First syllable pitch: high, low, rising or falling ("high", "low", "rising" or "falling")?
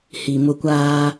low